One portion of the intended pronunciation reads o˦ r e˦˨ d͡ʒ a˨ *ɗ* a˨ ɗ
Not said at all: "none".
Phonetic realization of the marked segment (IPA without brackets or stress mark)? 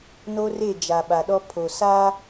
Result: ɓ